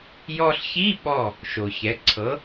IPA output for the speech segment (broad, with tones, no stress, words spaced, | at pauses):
jɔ˧ɬçi˧˥˧ɓɔ˧˩ | ʃo˩çɛ˩˥ ǀʰɤ˩˥